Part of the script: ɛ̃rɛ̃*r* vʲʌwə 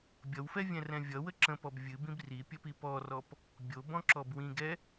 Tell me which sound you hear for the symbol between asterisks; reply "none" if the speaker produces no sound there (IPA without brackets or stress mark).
none